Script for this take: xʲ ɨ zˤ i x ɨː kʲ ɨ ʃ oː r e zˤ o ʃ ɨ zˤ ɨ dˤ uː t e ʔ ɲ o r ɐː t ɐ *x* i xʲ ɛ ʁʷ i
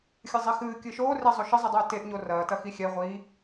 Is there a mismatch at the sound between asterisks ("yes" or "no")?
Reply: no